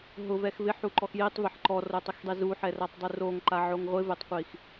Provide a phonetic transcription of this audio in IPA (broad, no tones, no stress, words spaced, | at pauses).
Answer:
ɦʊvɛx vɪħuǃɔx jitˤveħ ǃɔrotˤɪxdˤi zuħɛratˤdˤu roŋǃaʕoŋ ʁʷɪvetˤqʷix